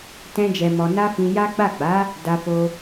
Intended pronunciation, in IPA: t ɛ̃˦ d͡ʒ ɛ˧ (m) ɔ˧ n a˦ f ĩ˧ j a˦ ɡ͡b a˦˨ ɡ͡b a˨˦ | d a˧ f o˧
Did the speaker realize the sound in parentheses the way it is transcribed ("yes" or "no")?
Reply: yes